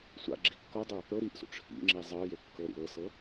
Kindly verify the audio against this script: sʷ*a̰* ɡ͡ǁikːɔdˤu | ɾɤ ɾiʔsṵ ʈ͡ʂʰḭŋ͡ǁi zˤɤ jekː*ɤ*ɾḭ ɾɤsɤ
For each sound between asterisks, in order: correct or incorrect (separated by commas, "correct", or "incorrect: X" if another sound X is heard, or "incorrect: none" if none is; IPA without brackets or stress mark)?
correct, correct